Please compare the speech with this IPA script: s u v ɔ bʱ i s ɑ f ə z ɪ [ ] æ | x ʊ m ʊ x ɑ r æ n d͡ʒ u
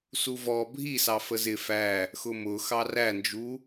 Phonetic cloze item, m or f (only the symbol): f